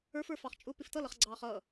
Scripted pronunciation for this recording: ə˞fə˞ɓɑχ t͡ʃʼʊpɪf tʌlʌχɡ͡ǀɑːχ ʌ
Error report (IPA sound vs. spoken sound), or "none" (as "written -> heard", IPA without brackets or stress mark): ɓ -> f